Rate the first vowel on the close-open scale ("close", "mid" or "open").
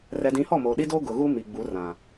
mid